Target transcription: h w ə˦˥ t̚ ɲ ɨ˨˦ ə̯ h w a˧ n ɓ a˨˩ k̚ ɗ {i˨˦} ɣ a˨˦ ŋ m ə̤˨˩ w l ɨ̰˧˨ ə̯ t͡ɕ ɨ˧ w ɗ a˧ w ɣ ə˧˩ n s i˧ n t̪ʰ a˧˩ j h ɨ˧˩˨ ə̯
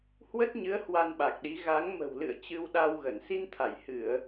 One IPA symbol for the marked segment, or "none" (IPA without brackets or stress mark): i˨˦